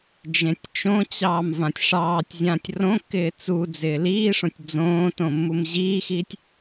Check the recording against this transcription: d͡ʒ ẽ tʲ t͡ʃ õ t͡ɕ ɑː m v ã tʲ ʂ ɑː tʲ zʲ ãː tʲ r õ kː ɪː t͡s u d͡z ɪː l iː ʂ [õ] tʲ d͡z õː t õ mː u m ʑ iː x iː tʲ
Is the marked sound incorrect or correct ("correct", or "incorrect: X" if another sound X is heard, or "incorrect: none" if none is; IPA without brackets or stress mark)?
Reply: correct